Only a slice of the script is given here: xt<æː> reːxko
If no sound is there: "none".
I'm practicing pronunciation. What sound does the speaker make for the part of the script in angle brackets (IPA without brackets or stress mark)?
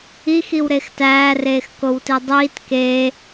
æː